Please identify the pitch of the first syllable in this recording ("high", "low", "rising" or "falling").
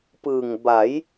low